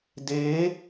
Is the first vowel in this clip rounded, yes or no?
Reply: no